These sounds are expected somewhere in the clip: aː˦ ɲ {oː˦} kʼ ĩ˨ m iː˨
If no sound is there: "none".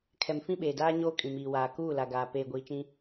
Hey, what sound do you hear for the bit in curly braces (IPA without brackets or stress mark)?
oː˦